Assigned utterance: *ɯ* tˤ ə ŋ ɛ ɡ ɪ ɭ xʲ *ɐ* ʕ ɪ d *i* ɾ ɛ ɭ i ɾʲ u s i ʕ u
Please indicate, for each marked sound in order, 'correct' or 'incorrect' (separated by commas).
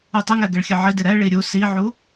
incorrect, incorrect, incorrect